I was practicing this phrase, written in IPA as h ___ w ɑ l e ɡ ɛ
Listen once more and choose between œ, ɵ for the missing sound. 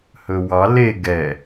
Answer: ɵ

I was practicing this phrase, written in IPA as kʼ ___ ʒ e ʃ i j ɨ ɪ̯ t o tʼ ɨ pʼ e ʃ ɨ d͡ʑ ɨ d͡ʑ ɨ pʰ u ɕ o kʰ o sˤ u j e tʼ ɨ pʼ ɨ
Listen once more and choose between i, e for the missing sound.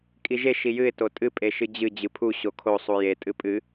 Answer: i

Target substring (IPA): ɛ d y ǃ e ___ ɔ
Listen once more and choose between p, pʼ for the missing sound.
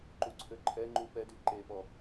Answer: p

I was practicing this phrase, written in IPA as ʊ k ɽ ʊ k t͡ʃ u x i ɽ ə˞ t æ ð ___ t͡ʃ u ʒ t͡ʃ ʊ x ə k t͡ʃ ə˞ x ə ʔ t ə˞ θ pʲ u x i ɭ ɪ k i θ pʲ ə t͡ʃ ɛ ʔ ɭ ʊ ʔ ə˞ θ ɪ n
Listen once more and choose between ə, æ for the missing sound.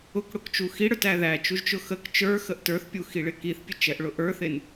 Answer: æ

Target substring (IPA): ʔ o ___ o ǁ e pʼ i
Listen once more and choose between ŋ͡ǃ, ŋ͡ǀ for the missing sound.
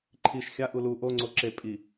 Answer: ŋ͡ǀ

